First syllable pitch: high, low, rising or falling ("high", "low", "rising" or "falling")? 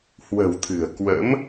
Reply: low